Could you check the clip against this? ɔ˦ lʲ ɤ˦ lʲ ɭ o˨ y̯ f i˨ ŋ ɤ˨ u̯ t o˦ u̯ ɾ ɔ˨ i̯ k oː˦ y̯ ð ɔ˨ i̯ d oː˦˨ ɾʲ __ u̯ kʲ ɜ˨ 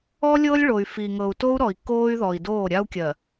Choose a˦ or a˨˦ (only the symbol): a˦